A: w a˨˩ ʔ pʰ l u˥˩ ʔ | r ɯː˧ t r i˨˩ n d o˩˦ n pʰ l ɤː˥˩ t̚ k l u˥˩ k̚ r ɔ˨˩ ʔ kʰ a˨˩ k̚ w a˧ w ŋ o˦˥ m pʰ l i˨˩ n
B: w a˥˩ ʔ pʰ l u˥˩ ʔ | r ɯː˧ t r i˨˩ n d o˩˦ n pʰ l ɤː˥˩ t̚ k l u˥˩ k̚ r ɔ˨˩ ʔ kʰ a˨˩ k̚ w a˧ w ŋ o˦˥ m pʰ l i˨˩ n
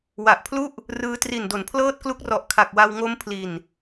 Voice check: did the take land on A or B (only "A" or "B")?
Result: A